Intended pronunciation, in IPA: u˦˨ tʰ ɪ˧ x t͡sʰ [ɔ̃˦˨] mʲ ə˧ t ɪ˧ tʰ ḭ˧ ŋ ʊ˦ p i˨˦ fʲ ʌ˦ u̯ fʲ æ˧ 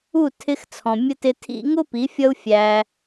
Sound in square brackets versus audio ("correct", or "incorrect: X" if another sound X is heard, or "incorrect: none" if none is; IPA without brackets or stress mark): incorrect: ɔ̃˨